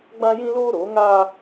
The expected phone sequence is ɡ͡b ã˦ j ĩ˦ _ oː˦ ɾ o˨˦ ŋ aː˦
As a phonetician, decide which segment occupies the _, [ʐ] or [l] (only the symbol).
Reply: l